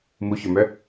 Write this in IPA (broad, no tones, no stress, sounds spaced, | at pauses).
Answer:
m u ç ɵ m œ